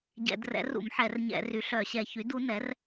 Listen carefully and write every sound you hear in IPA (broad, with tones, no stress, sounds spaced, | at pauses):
ɟ ɛ̰˧˩˧ d r ɛ̰˩˥ r ṵ˧˩˧ m ħ ɛ˧˩˧ r ɲ ɛ̰˧˩˧ r y˩˥ ɬ œ˧˩˧ ɕ ɛ˧˩˧ ç y˩˥ d u˩˥ n ɛ˩˥ r